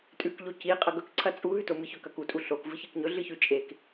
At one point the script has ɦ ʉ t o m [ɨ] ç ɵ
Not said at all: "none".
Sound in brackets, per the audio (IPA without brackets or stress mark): ɨ